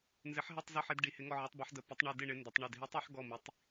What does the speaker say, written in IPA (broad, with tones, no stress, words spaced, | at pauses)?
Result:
nzɪ˧˥ħɦɛ˥˧tˤ zɔ˥˧ħe˧˥d ɖi˧˥hɪ˧˥ŋɔ˥˧ ʕe˧˥tˤbɔ˧˥ħ də˧˥ pɪ˧˥tˤɳe˥˧ dɪ˥˧ɳɪ˧˥ ndə˧˥tˤɳe˥˧d ɦi˧˥tˤe˧˥ħ ɡɔ˥˧mi˧˥tˤ